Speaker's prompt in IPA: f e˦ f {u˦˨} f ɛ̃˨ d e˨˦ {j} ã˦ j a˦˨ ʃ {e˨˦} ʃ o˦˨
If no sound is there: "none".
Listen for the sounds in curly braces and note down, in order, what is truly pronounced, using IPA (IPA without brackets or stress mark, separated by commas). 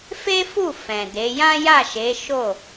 u˦˨, j, e˨˦